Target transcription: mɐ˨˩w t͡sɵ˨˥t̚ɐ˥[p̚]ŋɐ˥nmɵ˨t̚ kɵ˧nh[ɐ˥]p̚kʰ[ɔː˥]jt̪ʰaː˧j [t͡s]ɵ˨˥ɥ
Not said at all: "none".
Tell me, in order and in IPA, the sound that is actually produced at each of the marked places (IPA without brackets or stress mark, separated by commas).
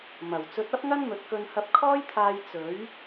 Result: p̚, ɐ˧, ɔː˥, t͡s